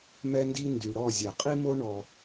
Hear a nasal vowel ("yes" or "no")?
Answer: no